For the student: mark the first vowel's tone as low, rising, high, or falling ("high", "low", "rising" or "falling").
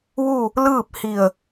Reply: falling